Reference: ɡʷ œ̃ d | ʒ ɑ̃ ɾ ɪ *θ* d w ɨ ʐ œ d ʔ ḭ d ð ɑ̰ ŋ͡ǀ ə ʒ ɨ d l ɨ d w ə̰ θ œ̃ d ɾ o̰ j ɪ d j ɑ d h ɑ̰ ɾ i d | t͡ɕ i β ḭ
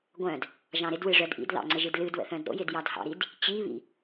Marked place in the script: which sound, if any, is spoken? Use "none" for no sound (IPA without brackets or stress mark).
none